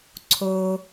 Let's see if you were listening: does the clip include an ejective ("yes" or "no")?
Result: no